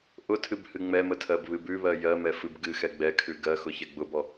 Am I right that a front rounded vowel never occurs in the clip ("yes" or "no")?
yes